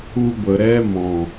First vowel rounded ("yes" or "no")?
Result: yes